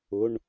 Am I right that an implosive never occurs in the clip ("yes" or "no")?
yes